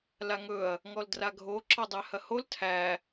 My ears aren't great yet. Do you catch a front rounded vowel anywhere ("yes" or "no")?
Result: no